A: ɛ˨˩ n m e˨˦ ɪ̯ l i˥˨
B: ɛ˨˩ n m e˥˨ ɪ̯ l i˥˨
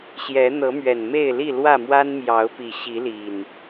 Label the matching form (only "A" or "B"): B